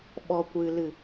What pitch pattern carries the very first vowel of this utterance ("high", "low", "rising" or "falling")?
low